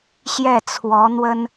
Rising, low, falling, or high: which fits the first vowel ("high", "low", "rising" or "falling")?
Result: falling